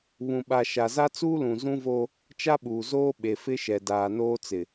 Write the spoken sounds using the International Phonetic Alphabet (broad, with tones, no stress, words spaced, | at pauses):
βũ˨ɓa˨ ʃa˨za˦t͡suː˦lũ˨ zũ˦vo˦ | t͡ʃa˦ɓuː˨zoː˦ɓe˨ fɪ˦ʃɛ˨daː˨ noː˦t͡sɪ˨